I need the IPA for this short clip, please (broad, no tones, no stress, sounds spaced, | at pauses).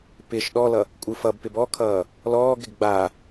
p ɪ ʃ ɗ ɔ l ʌ | kʷʼ ɯ f ʌ b p ɪ b ɔ kʰ ʌː | l ɔː ɡ ɾ ɪ ɡ ɡ͡b a